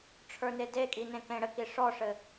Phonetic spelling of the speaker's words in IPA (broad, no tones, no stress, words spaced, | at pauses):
ʈ͡ʂʰə˞nedekʼi nẽkẽɽɘki ʂɔʂɘ